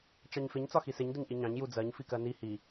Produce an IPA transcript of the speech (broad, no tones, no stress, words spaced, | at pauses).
t͡ʃɑɲfɪɲ t͡sɒxisɪɲ dʊɲʔiɲɑ̃ɲ jud͡zɜɲ fikɜni hi